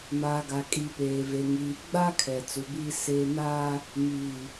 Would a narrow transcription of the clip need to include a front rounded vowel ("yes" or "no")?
no